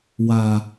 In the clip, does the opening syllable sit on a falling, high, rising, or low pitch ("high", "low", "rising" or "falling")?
low